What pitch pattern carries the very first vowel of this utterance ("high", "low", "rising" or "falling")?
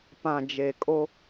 low